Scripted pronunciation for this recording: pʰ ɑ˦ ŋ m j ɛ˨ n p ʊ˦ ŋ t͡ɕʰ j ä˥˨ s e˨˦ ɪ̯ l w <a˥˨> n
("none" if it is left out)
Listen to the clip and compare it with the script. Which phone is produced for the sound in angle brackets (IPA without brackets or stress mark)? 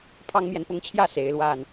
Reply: a˥˨